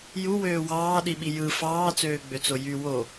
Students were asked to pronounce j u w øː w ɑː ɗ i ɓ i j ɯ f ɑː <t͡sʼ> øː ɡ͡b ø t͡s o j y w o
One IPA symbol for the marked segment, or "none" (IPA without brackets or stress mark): t͡s